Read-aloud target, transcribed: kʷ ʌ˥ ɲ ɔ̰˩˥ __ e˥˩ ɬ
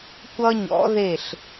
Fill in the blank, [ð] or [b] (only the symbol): ð